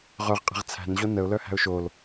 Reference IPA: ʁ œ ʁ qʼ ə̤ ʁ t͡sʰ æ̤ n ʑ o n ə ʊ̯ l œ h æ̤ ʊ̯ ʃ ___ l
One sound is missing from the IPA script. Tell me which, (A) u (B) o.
B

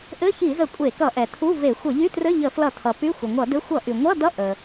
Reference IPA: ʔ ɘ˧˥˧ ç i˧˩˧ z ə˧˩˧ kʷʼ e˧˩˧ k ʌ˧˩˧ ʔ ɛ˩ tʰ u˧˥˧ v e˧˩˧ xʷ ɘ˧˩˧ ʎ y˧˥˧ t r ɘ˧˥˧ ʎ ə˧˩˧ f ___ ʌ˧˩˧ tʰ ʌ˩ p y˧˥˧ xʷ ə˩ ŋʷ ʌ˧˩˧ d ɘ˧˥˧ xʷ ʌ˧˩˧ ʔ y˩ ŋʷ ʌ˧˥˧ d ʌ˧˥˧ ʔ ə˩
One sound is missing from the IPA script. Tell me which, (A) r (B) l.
B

